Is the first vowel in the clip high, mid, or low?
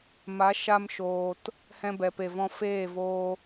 low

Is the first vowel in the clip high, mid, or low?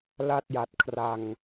low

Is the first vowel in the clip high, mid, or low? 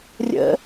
mid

